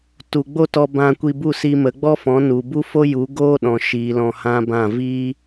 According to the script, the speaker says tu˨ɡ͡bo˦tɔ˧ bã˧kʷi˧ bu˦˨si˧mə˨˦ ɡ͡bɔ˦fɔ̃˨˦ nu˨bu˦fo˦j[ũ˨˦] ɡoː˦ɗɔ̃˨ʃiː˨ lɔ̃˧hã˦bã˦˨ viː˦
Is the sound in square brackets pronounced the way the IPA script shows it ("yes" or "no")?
no